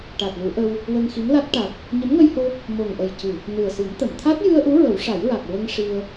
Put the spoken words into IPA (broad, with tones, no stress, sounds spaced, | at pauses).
ʈ a˨˩ t̚ l u˨˩˦ ʔ ə˧ w | w ə˧ ŋ x i˧˥ ŋ l a˦˥ t̚ ʈ a˨˩ t̚ | ɲ ə˧˥ m ŋ ə˧ j h o˧ | m o˨˩ ŋ ʔ ə˨˩ j c ɨ˨˩˨ | n ɨ˨˩ ə̯ s ɨ˨˩˦ m t̪ ə˨˩˨ m t̪ʰ a˦˥ t̚ j ɨ˧ ə̯ ʔ u˧˥ ɹ ə˨˩˦ w ʂ a˨˩˦ j ɹ a˨˩ k̚ ɹ ə˧ ŋ ʂ i˧ ə̯